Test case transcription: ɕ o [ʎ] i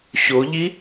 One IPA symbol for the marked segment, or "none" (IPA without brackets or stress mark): ʎ